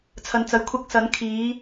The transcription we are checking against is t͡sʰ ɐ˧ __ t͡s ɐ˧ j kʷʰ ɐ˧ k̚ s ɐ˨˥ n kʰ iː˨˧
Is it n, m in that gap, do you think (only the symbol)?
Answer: n